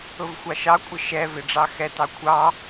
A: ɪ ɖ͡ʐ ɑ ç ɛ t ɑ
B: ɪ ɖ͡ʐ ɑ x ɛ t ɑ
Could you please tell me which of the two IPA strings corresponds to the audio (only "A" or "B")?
B